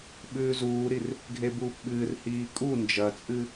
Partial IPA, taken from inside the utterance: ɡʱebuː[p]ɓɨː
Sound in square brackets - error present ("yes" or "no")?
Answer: no